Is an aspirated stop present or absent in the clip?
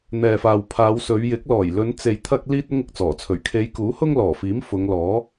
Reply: present